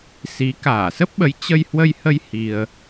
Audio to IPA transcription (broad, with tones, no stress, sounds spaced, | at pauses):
s i˨˦ k aː˧˩ s ə˦˥ p̚ ɓ ə˨˦ j t͡ɕ ə˧ j h w ə˧ j h ə˧ j h i˧ ə̯